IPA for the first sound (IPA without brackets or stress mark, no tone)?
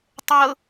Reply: tˤ